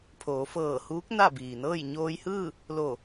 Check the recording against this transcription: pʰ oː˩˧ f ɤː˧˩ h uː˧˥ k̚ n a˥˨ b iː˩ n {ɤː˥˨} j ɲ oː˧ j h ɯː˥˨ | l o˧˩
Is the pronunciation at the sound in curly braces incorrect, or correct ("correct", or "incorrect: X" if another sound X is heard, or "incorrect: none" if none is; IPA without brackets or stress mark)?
correct